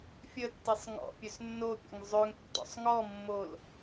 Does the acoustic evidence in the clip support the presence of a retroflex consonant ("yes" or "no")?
no